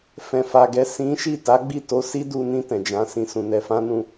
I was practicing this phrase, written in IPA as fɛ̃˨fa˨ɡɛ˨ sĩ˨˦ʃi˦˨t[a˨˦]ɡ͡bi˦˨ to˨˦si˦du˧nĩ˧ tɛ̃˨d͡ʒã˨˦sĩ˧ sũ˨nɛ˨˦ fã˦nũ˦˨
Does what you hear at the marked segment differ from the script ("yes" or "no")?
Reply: no